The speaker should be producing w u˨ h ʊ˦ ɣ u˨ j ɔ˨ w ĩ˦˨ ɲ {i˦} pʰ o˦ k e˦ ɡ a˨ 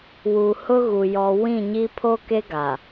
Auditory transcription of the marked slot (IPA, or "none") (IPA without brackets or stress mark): i˦